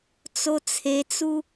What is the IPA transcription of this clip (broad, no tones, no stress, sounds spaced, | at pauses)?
t͡s o t͡sʰ e t͡s u